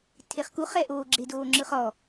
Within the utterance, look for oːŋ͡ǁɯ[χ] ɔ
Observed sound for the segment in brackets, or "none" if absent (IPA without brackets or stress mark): χ